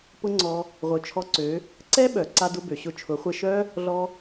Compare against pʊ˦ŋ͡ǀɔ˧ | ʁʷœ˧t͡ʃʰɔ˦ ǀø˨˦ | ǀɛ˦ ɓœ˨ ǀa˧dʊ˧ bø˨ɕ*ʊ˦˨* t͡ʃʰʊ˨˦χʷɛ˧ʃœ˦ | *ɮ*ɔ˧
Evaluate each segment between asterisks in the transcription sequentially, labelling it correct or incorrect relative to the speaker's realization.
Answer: correct, correct

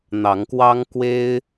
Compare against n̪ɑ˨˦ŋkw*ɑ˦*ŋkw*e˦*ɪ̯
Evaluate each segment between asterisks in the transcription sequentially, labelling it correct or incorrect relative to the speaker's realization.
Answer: correct, correct

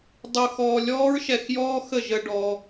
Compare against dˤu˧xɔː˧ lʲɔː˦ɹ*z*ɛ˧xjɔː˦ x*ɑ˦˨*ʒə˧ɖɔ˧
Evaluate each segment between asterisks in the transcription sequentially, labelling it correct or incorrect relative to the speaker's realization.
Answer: incorrect, incorrect

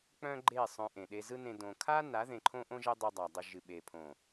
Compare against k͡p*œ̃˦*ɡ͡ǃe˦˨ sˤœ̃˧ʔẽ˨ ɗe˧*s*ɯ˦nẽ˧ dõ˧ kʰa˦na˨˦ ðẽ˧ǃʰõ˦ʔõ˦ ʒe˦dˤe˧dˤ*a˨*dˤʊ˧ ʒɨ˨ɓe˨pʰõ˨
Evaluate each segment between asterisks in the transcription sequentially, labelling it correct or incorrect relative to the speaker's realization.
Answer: correct, incorrect, correct

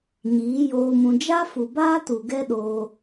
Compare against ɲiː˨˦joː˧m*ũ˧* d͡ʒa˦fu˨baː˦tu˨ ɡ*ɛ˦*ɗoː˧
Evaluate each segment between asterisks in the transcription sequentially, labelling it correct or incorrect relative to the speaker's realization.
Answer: correct, correct

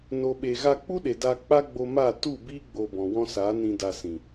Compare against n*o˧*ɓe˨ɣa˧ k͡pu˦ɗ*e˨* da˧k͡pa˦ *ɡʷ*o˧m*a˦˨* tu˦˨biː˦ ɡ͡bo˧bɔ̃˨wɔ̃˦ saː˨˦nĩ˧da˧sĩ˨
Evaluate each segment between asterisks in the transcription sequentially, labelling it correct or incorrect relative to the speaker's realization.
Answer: incorrect, correct, incorrect, correct

